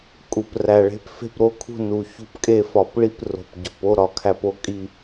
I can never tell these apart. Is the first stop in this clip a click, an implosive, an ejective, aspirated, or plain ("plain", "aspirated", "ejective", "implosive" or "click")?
ejective